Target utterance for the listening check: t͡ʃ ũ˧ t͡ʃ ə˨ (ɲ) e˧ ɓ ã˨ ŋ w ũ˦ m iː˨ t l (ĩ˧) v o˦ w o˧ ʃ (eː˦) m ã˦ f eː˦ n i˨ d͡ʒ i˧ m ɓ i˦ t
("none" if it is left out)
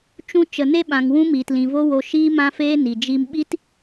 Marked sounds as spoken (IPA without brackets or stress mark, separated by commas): n, ĩ˨, iː˦